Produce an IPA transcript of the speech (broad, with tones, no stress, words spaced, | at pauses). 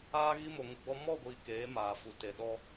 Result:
aː˧ɣi˧mo˨ ŋu˨ɡ͡bɔ˧ mɔ˦˨ɡʷiː˨ keː˨˦maː˨fu˨ te˨ɗɔ˧